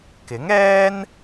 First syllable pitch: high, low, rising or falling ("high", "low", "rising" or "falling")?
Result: rising